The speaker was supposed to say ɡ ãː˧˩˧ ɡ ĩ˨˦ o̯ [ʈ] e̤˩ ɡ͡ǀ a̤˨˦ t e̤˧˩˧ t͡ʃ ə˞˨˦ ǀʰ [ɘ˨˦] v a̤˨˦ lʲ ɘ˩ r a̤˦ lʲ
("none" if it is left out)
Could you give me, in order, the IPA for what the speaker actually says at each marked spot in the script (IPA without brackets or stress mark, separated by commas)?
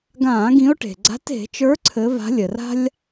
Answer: ʈ, ɘ˨˦